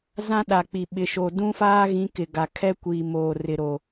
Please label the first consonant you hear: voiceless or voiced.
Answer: voiced